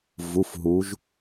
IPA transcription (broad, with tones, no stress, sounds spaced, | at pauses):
v u˩˧˩ f ɦ u˩˧ ʒ